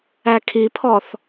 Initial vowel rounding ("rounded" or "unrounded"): unrounded